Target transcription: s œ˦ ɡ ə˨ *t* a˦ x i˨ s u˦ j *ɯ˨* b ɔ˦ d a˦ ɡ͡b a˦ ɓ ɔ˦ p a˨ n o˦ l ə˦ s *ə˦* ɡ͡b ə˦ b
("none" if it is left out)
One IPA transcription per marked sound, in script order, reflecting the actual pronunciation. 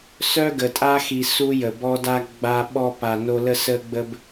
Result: tʼ, ə˨, ə˦

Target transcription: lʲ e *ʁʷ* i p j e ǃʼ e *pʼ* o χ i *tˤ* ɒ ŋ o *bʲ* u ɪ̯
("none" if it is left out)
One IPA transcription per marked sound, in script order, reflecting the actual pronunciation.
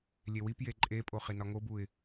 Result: w, pʼ, n, b

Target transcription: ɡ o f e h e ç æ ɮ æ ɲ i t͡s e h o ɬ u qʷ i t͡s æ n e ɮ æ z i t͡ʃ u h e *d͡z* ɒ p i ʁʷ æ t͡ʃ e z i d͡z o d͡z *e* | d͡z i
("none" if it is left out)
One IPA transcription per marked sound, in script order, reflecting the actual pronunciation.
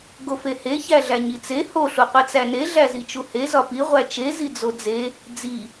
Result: z, e

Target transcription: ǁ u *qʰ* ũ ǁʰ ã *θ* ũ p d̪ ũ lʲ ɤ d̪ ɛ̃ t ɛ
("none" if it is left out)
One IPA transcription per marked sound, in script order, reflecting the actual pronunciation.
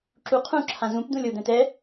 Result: qʰ, z

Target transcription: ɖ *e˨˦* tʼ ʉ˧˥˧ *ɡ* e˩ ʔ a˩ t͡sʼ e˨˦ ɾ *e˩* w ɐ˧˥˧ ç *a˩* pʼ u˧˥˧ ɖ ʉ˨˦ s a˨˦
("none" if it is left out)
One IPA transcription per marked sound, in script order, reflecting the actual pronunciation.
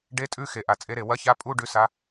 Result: e˧˥˧, x, e˩, a˧˥˧

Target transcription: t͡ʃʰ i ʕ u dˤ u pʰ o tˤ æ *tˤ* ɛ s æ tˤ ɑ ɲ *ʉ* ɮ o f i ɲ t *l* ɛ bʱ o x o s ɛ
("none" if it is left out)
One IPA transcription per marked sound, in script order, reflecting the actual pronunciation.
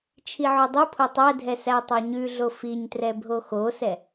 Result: dʱ, ʉ, r

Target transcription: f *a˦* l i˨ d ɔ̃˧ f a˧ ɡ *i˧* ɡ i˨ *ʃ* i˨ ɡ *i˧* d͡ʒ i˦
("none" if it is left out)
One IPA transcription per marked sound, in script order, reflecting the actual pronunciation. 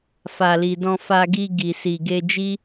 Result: a˨, i˧, s, e˧

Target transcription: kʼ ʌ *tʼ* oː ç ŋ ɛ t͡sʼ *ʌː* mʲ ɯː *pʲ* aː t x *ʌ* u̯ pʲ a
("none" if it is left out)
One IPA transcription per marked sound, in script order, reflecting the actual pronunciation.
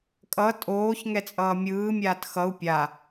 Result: tʼ, ʌː, mʲ, ʌ

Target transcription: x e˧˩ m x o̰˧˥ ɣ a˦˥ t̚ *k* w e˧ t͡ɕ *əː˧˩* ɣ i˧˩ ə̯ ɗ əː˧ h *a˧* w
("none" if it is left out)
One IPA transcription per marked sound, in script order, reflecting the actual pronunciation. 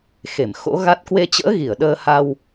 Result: k, ə̰ː˧˥, a˧

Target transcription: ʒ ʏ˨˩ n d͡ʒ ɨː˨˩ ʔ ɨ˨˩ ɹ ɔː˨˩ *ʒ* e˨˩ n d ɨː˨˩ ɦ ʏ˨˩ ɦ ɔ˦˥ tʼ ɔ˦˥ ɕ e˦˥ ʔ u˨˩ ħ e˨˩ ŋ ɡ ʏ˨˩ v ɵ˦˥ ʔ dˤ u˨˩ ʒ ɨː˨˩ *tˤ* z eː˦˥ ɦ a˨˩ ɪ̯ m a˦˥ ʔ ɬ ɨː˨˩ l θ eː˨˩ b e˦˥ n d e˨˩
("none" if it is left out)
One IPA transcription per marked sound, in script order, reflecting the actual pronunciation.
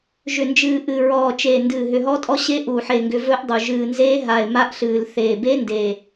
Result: t͡ʃ, n

